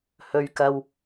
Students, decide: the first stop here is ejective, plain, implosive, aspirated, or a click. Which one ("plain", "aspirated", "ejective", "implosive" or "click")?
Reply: plain